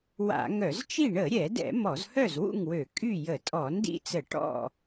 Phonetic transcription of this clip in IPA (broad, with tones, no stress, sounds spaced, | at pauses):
w a̰˧˩˧ ŋ œ˧˩˧ z t͡ʃ i˥˨ ɳ ə˧˩˧ ɾʲ ɛ˧˩˧ d ɛ̰˧˩˧ m ɔ˧˩˧ z h œ˥˨ z w ṵ˥˨ ŋ w ø˧˩˧ kʼ y˥˨ j ə˧˩˧ tʼ ɔ˧˩˧ n d ḭ˥˨ t͡s ə˧˩˧ ʈ ɔ̰˥˨